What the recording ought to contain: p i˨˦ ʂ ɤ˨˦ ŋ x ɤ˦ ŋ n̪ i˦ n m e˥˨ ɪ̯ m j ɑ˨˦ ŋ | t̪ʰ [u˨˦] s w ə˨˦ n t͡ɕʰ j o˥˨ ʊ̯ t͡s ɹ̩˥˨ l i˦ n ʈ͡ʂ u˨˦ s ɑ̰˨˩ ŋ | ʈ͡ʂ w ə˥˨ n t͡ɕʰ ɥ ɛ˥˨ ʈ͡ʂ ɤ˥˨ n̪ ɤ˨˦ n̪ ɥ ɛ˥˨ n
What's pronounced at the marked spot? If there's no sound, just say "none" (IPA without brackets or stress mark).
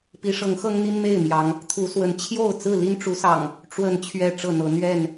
u˨˦